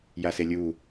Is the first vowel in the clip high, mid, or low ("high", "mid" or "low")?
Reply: low